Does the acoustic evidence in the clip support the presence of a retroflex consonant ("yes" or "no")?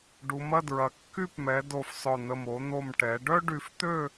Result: yes